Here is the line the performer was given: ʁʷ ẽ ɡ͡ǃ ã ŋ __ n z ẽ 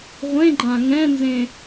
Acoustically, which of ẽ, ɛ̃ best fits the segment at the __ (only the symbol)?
ɛ̃